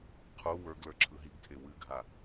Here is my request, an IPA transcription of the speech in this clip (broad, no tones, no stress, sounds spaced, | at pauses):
qʰ u w ə˞ ɡ l ə˞ ǁʰ ɯ ɦ i ɡ kʰ e w ɨ ɡʱ a